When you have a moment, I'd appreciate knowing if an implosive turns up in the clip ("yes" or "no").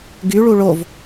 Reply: no